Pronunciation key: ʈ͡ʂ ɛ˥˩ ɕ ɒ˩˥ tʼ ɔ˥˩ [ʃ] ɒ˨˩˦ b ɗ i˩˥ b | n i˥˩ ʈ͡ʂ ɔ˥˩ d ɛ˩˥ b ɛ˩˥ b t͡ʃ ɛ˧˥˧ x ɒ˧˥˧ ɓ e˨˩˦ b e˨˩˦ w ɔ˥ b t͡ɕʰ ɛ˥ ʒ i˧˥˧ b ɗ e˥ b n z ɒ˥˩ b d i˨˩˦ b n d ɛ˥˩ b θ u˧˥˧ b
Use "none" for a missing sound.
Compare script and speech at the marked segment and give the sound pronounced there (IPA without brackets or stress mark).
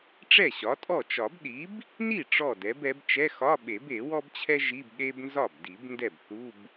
t͡ʃ